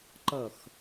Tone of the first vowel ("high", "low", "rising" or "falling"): falling